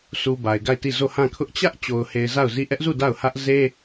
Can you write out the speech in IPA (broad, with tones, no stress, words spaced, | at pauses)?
su˨ ba˨ɪ̯ɡa˦˨ɪ̯ti˦˨ zo˦˨hã˦˨kʰʊ˦ʔ t͡ɕä˦ʔ t͡ɕo˨ʊ̯he˨ɪ̯ za˦˨ʊ̯zi˦˨ ʔɛ˦ʔzu˦˨ da˦˨ʊ̯hä˦ʔ ze˦